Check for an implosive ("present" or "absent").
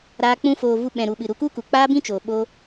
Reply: present